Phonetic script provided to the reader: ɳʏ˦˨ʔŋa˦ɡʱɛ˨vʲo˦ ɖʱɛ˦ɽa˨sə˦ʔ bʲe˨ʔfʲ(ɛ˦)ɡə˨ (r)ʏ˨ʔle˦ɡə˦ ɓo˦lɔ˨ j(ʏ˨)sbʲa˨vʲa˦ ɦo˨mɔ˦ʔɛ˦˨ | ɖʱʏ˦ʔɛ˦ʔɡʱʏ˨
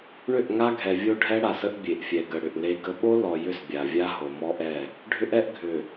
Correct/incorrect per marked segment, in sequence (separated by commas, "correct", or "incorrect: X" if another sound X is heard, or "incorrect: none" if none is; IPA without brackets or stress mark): incorrect: ɛ˨, incorrect: ɽ, incorrect: ʏ˦